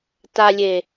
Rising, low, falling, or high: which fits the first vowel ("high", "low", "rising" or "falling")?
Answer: low